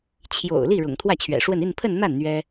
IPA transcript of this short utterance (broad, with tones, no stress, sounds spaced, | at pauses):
t͡ɕʰ j o̰˨˩ ʊ̯ l i˥˩ ɻ ʊ̰˨˩ ŋ t̪ʰ w ä˥˩ t͡ɕʰ ɥ ɛ̰˨˩ ʂ w ə˥˧ n i˥˧ n pʰ ə˥˧ n n̪ a˥˩ n n̪ ɥ ɛ˥